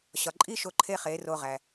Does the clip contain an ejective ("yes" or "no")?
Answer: yes